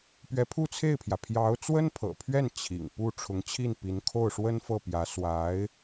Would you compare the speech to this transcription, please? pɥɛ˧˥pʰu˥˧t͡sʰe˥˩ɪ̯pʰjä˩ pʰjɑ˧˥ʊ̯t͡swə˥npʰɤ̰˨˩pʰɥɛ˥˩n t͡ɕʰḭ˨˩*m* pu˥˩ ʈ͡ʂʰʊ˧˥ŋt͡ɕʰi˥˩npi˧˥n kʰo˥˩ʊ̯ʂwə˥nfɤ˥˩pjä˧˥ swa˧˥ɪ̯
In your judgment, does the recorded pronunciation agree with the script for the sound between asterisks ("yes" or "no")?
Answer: no